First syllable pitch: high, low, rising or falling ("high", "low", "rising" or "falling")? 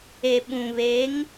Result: low